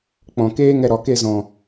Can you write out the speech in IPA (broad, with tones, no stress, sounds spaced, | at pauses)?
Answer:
k͡p ɔ̃˨ k eː˦ ŋ ɛ˧ ɾ ɔ˨ k e˧ z ɔ̃˨